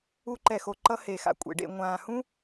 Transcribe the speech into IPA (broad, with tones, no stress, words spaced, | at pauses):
u˧ǃɛ˨xo˨ǃʌ˧ he˨xa̰˨kʷʼḛ˨ɖḛ˧ ŋʷãː˨hũ˦